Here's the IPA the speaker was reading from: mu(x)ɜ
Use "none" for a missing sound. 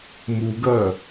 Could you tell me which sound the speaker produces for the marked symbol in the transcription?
ɡ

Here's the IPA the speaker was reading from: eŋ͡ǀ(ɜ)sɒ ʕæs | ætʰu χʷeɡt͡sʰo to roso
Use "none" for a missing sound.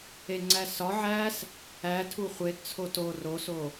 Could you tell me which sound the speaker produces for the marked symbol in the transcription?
æ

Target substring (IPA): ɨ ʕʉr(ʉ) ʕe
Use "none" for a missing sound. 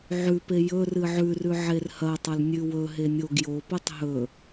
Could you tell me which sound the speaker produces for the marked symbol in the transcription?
ʉ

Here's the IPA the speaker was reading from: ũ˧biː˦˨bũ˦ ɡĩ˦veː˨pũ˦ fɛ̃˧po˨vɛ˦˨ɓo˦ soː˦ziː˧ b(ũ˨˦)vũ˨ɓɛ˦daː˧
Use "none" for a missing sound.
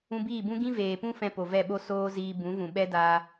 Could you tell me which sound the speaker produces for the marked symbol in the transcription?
ũ˨˦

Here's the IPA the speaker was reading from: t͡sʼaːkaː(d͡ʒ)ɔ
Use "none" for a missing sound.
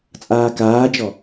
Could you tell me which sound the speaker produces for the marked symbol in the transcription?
d͡ʒ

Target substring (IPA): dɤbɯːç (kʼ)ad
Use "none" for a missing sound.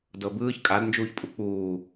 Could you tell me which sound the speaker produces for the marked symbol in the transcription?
kʼ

